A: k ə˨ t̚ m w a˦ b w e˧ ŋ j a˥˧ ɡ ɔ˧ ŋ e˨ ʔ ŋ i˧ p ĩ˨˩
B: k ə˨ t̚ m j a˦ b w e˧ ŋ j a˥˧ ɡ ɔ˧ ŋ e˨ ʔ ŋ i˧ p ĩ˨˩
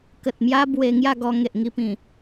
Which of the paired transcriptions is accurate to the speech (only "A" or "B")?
B